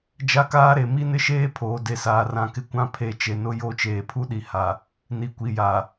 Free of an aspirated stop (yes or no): no